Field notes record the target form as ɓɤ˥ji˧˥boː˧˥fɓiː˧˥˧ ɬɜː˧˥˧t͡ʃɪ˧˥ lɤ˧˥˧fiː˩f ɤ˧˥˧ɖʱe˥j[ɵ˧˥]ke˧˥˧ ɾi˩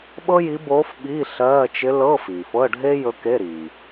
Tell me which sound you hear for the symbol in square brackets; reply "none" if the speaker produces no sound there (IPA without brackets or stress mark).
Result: ɵ˧˥